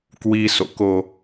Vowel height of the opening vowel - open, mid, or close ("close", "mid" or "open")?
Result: close